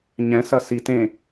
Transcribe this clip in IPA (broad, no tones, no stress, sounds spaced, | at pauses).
ɲ ɛ̃ s ɐ s i t ẽ